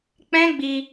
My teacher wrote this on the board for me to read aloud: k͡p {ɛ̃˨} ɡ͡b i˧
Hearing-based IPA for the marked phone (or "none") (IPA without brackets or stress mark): ɛ̃˦